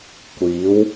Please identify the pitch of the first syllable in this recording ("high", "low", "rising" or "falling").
rising